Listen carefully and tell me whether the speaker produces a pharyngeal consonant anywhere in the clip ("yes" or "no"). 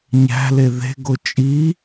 no